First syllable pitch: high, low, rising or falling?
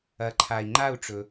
rising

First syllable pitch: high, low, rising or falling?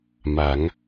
rising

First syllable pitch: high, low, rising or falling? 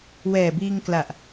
low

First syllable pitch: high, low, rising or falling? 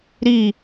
falling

